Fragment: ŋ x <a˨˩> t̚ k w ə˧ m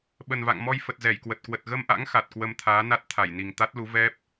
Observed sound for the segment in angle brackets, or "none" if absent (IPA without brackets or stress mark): a˨˩